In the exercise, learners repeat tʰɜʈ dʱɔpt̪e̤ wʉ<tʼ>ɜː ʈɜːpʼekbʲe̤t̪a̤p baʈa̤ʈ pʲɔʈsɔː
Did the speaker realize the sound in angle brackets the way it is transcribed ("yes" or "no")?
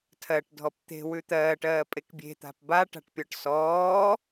no